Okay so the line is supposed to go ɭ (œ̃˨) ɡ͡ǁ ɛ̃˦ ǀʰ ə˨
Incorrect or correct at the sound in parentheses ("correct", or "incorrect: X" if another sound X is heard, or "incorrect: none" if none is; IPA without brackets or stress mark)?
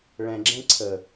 incorrect: ɛ̃˨